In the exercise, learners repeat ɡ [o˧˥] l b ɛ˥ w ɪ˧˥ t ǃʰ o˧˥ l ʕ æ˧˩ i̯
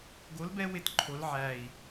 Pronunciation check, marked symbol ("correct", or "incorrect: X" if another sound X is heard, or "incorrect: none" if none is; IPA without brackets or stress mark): correct